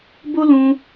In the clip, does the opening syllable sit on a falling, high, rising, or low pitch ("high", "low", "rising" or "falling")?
high